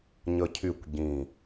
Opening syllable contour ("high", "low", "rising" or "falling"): high